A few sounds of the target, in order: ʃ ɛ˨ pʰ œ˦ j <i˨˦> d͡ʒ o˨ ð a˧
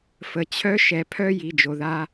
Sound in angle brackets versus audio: incorrect: i˨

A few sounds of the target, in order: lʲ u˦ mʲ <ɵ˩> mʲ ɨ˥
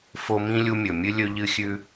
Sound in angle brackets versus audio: correct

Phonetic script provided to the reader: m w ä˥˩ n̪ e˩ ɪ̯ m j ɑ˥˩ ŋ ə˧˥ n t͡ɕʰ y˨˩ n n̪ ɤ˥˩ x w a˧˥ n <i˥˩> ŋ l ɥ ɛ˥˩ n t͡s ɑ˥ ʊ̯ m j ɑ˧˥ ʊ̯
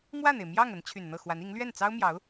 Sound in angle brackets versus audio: incorrect: i˧˥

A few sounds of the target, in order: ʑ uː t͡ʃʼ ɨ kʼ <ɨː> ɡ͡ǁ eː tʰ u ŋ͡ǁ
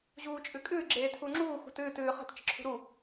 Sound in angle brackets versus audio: correct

